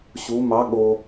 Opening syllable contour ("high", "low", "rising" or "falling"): rising